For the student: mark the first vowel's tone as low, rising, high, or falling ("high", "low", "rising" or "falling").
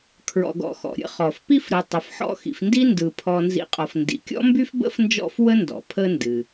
low